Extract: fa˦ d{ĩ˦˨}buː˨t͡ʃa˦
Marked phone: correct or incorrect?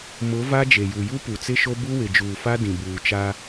incorrect: ĩ˨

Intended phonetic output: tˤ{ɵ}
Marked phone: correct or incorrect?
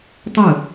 correct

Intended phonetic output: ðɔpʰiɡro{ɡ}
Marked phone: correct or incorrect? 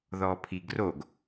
correct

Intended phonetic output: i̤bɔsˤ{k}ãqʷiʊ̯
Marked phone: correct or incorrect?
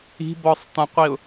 incorrect: t̪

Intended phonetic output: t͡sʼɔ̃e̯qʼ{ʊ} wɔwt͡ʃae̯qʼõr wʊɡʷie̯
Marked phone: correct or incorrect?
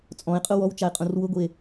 correct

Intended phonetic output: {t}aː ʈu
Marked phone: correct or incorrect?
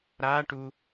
incorrect: ɾ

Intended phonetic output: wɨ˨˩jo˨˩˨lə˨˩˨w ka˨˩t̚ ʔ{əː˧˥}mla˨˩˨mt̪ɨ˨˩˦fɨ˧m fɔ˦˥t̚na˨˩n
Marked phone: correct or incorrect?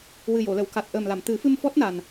incorrect: əː˨˩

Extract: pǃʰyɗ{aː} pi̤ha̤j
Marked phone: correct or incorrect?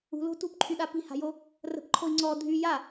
incorrect: a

